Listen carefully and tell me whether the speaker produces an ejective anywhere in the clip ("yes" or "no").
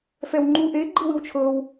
no